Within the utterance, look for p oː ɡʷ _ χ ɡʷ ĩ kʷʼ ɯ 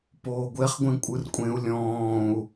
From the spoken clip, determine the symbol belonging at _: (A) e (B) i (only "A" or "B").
A